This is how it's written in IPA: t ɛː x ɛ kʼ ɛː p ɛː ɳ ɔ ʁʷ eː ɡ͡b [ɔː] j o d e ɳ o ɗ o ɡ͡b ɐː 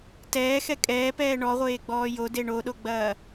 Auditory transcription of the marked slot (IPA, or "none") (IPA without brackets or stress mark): ɔː